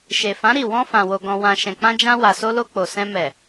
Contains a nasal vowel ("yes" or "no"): yes